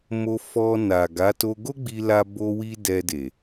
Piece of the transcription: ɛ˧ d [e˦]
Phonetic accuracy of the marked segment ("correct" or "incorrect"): incorrect